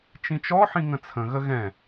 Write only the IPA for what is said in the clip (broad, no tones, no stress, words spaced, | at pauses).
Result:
t͡ʃĩt͡ʃɔħĩ ŋə̃t͡sʰə̃ɣə ɣɛ̃